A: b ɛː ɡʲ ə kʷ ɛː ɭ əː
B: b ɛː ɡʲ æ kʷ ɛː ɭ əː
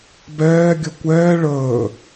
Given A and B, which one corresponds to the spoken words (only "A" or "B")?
A